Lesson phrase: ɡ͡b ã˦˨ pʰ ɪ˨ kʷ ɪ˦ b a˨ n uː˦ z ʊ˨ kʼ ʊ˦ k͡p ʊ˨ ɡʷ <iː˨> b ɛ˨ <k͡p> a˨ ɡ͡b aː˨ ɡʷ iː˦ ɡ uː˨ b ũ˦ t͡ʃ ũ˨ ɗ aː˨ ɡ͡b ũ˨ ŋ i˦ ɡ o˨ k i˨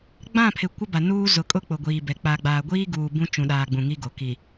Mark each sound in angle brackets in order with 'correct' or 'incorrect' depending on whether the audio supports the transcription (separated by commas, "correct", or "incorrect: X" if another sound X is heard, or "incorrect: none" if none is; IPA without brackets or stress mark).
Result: correct, correct